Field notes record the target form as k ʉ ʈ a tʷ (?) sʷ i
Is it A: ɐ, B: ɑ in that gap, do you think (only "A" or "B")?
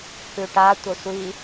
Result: A